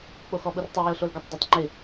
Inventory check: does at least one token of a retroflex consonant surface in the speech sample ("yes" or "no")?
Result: no